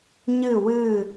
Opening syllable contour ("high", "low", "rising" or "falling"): falling